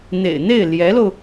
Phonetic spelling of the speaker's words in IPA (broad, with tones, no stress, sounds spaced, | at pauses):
n̪ ḛ˨˩ ɪ̯ n̪ e˥˩ ɪ̯ l j ɛ˧˥ l o˧ ʊ̯